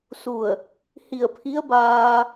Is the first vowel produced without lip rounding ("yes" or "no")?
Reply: no